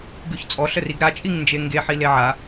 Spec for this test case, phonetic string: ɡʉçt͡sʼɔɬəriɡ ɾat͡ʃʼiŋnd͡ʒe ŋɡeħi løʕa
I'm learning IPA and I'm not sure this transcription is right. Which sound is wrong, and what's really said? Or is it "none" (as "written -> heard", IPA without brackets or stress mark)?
ø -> e